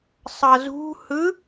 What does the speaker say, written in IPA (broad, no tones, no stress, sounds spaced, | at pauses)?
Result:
sˤ ʌ z ṳ h ɯ